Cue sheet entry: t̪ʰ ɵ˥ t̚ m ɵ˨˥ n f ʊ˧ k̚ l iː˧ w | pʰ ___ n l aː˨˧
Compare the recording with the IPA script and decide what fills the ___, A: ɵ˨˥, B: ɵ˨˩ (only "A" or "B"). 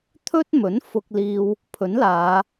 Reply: A